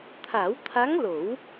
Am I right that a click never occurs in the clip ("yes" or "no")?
yes